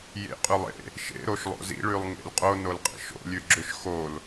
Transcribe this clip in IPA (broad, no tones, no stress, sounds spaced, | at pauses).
j ḛ qʼ ʉ lˠ ḛ | ʃ ḛ ɾ o ʃ lˠ o̰ z ḭ ɭ ʉ lˠ ŋ ḛ l qʼ o n o l qʼ ḭ ʃ o̰ lʲ ʉ ɡ͡ǁ ʏ ʃ x o l